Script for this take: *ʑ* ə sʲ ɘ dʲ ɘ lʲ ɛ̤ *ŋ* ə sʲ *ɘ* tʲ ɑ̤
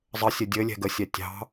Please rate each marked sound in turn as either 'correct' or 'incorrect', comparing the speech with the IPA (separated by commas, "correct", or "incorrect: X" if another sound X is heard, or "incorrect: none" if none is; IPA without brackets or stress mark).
incorrect: zˤ, incorrect: ɡ, incorrect: ɛ